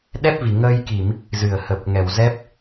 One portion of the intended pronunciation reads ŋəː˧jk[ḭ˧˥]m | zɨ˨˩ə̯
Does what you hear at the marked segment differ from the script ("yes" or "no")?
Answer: yes